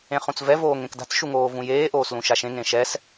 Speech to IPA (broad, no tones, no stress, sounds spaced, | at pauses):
ẽ χ ũ t͡s v ɛ v oː ŋ ẽ k d a̤ t͡s ʃ u ŋ oː v ũ j eː ʔ oː s l ũ ʃ a ʃ ẽ ŋ ẽ ʃ ɛ s